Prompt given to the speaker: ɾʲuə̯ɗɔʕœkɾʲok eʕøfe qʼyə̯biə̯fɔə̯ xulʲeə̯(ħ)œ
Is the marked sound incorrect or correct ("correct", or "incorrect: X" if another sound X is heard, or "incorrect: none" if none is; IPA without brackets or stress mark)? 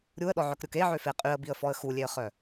incorrect: χ